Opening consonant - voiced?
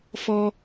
no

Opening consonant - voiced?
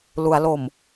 yes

